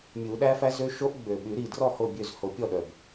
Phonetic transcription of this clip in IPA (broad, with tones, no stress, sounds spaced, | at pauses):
mʲ u˨˩˦ ɗ æ˦˥ f æ˦˥ z ø˦˥ ʃ o˦˥ ʔ ɡ͡b ø˨˩ ɓ y˨˩˦ ɾ i˨˩ d r ɔ˥˩ h o˥˩ bʲ ø˥˩ z h o˨˩˦ pʲ ɔ˥˩ ɗ œ˨˩ b